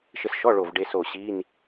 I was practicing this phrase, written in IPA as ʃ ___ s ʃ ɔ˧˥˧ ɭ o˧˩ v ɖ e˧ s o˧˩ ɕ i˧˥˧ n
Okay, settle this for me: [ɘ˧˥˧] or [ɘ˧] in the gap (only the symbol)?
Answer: ɘ˧